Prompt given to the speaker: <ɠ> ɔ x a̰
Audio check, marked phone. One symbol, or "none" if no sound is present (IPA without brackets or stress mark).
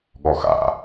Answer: ɠ